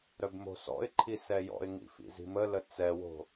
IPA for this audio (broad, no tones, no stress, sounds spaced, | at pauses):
ɾ œ b m o̤ s ɔ̰ ɪ̯ ǃʰ i s ɛ j ɔ̰ ɪ̯ ŋ ḭ f ḭ z i̤ m ə l ə t͡s ɛ w o̤